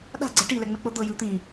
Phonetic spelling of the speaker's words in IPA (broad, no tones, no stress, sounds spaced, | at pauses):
ɗ a̤ ɡ͡ǀ ɛ ʈ i l ɛ ŋ͡m ɛ k͡p ɤ d̪ ɤ j ɯ t̪ ĩ